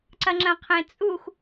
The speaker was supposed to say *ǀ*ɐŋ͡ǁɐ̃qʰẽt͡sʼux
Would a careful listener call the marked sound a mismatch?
no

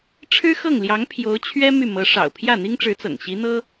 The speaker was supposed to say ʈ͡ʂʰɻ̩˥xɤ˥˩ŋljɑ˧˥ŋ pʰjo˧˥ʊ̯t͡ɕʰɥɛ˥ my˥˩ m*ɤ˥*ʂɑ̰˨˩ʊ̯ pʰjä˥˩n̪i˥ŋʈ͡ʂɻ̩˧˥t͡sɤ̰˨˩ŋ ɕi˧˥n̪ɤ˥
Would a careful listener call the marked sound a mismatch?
yes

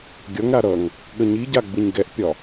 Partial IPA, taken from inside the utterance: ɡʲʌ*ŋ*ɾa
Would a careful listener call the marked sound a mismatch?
no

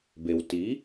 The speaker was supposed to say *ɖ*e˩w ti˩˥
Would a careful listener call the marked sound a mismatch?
yes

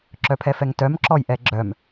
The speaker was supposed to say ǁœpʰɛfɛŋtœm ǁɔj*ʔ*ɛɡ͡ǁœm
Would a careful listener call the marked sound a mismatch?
no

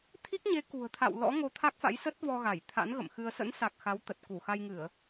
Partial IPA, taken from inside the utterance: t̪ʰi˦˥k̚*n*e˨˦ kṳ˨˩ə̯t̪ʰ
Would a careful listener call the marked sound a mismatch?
yes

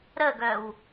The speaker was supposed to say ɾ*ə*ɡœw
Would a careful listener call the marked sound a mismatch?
no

